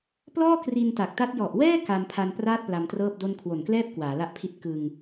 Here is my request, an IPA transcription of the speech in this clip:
p l ɔː˥˩ k r i˧ n t a˨˩ k̚ t a˦˥ t̚ j ɔ˨˩ ʔ w ɛː˥˩ k a˧ m pʰ a˧ n p r aː˥˩ t̚ p l a˧ m t r ɤː˥˩ p̚ d o˥˩ n kʰ w o˨˩ n k l ɛː˥˩ p̚ k w aː˩˦ l a˥˩ ʔ pʰ i˥˩ t̚ k ɯ˧ ŋ

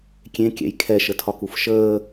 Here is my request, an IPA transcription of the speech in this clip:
kʲ ẽ kʲ ɛ̰ j kʰ ɛ ʃ ə tʰ ɒ k u f ʃ əː

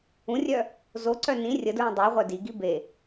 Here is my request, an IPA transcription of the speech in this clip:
ũ rʲ œ | z o ǀ œ n ĩ rʲ ə d ɹ ĩ dˤ y ʁʷ œ d i ɡ i b e

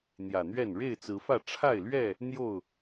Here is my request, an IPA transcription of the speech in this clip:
n̪ j ä˨˩ n̪ ɥ ɛ˥˨ n ɻ e˥˨ ɪ̯ t͡s ɹ̩˨˦ f ä˥˨ ʈ͡ʂʰ a˥˨ ɪ̯ l ɥ ɛ˥˨ | n̪ j o˥˨ ʊ̯

